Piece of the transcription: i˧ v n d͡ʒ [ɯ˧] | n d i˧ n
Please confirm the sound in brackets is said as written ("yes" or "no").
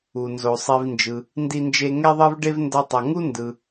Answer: no